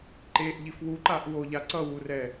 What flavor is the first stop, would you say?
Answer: click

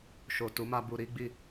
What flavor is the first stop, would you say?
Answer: plain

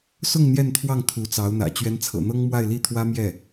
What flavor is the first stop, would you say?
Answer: aspirated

